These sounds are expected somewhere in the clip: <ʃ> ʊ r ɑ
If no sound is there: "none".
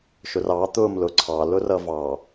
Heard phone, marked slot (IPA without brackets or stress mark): ʃ